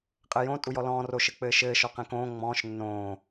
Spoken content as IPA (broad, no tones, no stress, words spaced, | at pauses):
qʼɘjõ tʼujɔlɔ̃ː roʃɘk͡pɘːʃɘː ʃɔqẽkõː ŋ͡mɔ̃ːʃ nːõː